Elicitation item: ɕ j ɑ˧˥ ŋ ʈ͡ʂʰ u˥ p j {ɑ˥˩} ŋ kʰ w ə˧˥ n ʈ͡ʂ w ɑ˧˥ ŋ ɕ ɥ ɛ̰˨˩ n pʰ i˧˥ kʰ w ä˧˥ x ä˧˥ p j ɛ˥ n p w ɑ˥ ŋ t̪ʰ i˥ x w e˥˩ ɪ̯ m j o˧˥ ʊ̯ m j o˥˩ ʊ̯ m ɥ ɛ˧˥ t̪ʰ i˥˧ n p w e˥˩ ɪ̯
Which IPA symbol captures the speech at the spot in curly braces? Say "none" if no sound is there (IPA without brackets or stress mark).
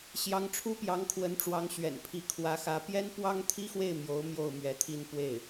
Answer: ɑ˧˥